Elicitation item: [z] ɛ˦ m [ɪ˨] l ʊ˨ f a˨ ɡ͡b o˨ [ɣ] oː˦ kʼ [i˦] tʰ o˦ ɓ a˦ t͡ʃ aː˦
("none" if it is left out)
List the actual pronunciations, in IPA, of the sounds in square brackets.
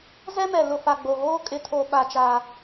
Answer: z, ɛ˨, ɣ, ɪ˦

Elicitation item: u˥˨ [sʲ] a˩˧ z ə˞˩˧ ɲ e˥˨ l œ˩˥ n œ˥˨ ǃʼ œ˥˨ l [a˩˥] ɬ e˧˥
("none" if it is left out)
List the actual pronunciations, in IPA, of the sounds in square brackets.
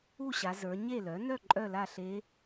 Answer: ɕ, a˥˨

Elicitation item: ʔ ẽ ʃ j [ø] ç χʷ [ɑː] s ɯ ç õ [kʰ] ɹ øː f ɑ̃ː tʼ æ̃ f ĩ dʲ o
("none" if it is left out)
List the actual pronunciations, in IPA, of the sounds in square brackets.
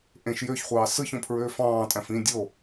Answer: ø, ɑː, pʰ

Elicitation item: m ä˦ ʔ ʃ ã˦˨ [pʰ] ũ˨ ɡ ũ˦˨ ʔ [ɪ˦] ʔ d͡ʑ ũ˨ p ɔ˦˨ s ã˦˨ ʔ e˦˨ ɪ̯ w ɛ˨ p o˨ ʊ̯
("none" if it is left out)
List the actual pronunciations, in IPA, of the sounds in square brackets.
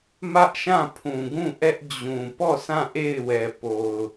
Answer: pʰ, ɛ˦

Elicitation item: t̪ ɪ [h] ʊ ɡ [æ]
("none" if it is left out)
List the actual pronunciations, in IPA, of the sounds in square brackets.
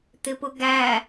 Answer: p, æ

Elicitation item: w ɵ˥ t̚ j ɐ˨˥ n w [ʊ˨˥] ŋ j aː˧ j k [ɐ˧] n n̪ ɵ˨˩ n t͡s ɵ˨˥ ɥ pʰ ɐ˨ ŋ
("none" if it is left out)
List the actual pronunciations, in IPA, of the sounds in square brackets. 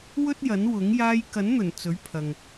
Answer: ʊ˨˥, ɐ˨˥

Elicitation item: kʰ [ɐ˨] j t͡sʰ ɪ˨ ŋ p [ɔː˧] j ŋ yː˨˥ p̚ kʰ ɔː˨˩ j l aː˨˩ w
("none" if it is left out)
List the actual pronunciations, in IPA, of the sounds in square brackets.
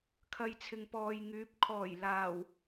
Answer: ɐ˨, ɔː˨

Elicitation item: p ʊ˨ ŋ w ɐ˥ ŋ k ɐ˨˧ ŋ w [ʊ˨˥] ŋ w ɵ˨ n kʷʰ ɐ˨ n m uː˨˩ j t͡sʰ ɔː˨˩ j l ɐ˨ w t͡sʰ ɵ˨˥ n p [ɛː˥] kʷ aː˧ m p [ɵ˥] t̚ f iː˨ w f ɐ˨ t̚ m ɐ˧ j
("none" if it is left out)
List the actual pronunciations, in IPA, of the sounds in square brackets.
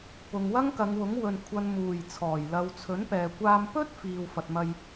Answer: ʊ˨˥, ɛː˨, ɵ˥

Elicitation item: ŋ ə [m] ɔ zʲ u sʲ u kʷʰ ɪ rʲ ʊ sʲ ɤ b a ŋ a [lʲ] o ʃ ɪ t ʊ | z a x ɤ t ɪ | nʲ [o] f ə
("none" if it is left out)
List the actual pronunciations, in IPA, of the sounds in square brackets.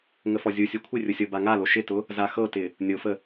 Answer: f, l, o

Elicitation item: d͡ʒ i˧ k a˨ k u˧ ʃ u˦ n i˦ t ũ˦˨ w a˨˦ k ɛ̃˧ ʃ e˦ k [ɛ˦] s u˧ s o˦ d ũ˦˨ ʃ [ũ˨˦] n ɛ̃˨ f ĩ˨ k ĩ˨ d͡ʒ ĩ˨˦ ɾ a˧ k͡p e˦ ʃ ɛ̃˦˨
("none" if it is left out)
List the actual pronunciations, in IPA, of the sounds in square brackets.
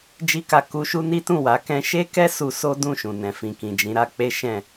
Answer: ɛ˦, ũ˨

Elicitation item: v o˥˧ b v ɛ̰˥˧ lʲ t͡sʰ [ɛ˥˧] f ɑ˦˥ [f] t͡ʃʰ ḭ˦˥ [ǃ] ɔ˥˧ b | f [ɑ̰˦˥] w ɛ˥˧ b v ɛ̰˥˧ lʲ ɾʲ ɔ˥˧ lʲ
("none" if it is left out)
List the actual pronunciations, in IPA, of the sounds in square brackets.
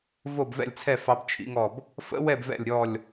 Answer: ɛ˥˧, b, ŋ, ə̰˦˥

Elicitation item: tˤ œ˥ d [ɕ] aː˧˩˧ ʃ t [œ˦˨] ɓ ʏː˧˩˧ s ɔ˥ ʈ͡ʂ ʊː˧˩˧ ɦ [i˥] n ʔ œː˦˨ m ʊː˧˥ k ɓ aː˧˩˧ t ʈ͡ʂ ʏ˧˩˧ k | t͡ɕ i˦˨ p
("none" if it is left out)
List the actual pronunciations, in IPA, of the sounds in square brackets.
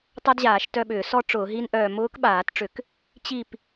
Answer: ʑ, œ˦˨, i˥

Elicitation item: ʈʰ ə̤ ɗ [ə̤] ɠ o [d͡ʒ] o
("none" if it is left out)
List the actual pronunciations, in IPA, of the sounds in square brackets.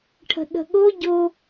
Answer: ə̤, ɟ

